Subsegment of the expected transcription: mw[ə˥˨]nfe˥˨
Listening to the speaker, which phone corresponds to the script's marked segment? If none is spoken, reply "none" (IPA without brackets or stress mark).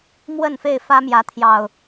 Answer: ə˥˨